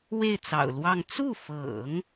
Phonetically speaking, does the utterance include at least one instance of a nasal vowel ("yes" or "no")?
no